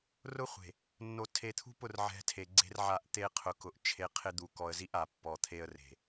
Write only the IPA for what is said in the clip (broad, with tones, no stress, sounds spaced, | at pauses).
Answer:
r ʊ˦ χʷ e̤˨ | nː o˨ tʰ e˨ t̪ʰ ṳ˦ p ʊ˦˨ r ʕ ɛ̤˦ tʰ e˨ ɡ͡ǀ e̤˦ r ʕ a˦˨ ʔ t̪ e˦ qʰ ʊ˨ k ʊ˨ ʔ t͡ʃʰ e˦ qʰ ɪ˦ d̪ u˨ k ɔ˨ ə̯ z i˦ ʔ a˨ pː ɔ˨ t̪ʰ e˦ ə̯ r e̤˨